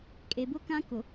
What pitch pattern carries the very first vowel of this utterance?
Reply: low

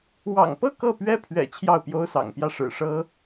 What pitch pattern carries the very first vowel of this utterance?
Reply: low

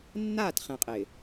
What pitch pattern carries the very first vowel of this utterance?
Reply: falling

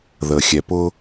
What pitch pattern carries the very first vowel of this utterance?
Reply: low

